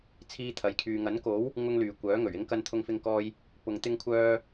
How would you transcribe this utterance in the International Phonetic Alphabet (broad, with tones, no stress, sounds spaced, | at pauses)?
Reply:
t͡sʰ iː˥ t̪ʰ ɐ˨˥ j kʰ yː˧ ŋ ɐ˨˥ n k o˨˥ w | ŋ ʊ˥ ŋ l yː˨ kʷ œː˨˥ ŋ ɵ˨˩ ɥ ɪ˥ ŋ k ɐ˥ n t̪ʰ ʊ˥ ŋ f ɪ˥ ŋ k ɔː˥ j | p ʊ˧ ŋ t̪ ɪ˥ ŋ kʷʰ œː˥